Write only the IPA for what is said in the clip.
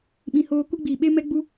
ɓĩ˧ hoː˧ ku˧ɡ͡biː˨ɓe˧ mɛ˦ɡ͡bu˦

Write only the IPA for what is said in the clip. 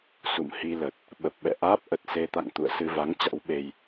sṵ˧˨mhi˧lə˨˩t̚ | ɓə˨˩p̚ɓɛ̰˧˨ʔaː˦˥p̚ʔə˨˩t̚ se˧t̪a̰˧˨ŋ t̪ṵ˧˨ə̯sɨ˧va˨˦ŋ t͡ɕa̰˧˥wɓe˧j

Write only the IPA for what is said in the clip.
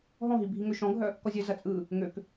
ɦɔ̃ɦi bʱiŋøʃɔ̃ɡʱœ | kɔzʲœzɐ t͡sʼɯ | ŋøk

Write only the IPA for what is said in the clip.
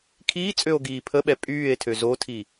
kʰiːt͡sʼøo̯ɡiː pʰəɓɛ pʼyːe̯tʰø zotʰi

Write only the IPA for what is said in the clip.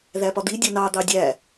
ðæpɒd̪i dʲʌnɑ d̪ɑdʲæ

